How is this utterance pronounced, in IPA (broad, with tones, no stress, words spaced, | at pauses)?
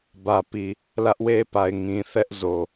bä˨pi˨ | lä˦ʔwe˦pa˨ɪ̯ ŋĩ˨ θɛ˦ʔzo˨